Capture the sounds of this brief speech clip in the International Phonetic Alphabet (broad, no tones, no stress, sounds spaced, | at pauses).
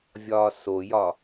vʲ ɒː s o j ɒ